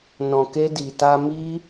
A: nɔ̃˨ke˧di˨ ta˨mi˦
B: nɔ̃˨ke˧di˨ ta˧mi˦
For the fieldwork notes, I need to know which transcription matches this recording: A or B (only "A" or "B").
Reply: B